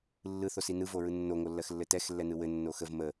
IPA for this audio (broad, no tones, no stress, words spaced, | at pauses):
lːɯθosi nɯvoɹɯ nːoŋolːɜxlːɘ tɛxlːɛnɯ wɘnːo xəv mə